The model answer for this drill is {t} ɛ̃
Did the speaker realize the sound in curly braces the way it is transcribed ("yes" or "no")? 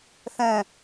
no